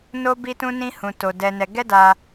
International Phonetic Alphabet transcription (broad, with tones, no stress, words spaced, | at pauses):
no˦bi˦tũ˦nĩ˦ hũ˧to˧ dɛ˧nɛ˧ ɡɛ˦da˧